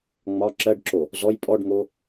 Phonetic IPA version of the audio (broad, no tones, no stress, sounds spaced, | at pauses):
ŋ͡m ɒ ǁ ɜ ɖ ǁ o | z ɔ j pʼ ɔ ɖ ŋ o